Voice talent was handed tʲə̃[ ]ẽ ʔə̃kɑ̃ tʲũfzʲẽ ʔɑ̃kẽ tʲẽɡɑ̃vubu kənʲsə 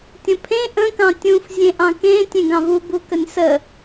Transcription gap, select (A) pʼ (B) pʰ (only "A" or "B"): B